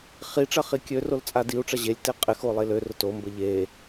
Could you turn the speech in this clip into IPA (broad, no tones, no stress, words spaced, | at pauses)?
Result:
χiʈ͡ʂɐ χikʲørol t͡sʼadiu̯ʈ͡ʂɐ ʑelʲ teqʼɪxo lˠelørʊ tombə ʎe